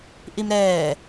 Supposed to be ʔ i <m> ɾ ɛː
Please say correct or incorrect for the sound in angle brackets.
correct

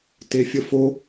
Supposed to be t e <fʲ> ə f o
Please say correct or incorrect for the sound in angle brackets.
correct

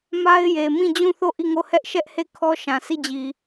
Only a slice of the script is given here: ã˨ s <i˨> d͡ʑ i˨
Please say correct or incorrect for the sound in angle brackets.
incorrect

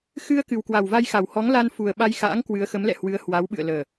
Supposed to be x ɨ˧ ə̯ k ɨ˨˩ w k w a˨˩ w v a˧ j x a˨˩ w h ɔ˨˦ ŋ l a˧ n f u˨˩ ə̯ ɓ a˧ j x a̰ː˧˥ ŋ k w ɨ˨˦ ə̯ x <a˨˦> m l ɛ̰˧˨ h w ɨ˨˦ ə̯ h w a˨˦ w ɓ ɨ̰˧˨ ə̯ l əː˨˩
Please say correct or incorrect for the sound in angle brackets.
incorrect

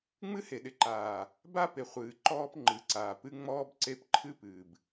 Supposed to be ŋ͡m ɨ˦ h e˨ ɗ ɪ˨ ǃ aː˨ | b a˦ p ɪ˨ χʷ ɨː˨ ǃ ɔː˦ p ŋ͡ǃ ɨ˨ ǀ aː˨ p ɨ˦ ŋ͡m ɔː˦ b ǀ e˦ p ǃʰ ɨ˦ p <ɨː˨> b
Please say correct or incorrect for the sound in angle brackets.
correct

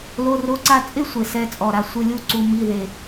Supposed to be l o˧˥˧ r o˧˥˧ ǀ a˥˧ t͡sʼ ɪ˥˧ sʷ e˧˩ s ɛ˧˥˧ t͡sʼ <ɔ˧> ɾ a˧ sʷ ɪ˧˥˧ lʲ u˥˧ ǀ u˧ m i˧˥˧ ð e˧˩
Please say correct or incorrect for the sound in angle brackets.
incorrect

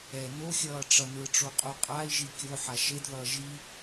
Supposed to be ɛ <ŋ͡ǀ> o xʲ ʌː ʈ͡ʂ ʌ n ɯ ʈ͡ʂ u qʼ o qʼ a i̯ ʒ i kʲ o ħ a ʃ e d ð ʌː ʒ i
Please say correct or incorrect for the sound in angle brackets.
incorrect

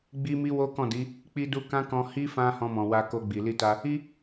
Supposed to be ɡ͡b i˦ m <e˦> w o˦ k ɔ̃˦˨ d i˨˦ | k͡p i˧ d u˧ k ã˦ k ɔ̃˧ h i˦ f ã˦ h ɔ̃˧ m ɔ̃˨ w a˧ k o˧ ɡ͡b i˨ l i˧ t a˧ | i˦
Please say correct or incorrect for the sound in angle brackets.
incorrect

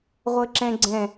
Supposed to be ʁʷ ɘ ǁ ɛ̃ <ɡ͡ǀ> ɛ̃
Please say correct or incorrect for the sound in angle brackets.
correct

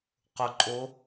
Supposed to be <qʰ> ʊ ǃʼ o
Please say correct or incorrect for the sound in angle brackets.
incorrect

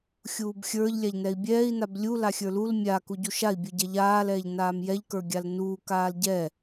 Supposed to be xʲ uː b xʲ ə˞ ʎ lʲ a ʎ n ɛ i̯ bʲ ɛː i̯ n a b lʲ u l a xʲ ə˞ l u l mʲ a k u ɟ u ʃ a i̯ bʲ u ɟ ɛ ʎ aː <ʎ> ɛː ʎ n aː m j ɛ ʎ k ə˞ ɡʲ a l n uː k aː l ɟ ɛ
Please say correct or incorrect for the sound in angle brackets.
incorrect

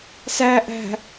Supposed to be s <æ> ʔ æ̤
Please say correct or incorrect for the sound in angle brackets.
correct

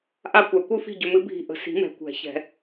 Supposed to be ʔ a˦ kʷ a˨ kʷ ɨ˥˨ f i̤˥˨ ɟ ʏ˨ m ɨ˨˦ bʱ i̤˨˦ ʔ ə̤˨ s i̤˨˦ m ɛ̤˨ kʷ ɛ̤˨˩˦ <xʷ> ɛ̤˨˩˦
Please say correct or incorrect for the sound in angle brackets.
incorrect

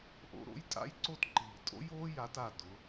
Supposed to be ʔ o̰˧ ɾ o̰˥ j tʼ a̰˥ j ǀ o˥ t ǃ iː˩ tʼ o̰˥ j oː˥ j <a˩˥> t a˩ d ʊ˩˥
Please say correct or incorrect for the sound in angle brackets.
correct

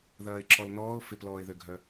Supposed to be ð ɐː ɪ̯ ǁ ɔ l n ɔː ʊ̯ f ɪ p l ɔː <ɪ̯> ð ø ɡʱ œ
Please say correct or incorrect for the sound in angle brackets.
correct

